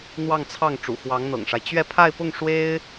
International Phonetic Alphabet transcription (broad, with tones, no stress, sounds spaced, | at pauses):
n̪ w ɑ˥˧ ŋ t͡sʰ ɑ˥˩ ŋ ʈ͡ʂ ṵ˨˩ x w ɑ˧˥ ŋ n̪ ɤ̰˨˩ ŋ ʂ a˦ ɪ̯ t͡ɕ ɥ ɛ˥˧ pʰ a˥˧ ɪ̯ p ʊ˥˩ ŋ ʂ w e˥ ɪ̯